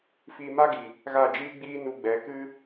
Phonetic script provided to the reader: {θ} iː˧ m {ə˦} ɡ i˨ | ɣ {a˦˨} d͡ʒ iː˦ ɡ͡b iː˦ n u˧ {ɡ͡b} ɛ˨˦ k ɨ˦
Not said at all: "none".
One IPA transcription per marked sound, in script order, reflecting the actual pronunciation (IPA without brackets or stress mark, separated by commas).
f, a˦, a˦˨, ɡ͡b